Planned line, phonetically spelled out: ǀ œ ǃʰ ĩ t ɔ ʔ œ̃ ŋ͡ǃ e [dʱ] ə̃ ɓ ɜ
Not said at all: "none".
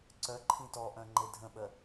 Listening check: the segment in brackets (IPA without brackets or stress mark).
dʱ